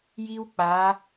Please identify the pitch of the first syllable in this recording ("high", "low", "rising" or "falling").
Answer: high